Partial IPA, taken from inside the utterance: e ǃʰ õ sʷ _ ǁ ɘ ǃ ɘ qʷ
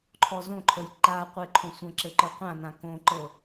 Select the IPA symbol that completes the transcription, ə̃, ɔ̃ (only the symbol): ə̃